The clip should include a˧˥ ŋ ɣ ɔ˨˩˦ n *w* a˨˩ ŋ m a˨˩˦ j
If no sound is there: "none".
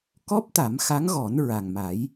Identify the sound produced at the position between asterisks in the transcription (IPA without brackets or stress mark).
ɹ